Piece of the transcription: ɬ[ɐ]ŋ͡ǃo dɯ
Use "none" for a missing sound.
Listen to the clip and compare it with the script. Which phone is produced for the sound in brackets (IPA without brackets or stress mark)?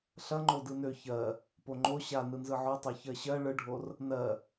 ɐ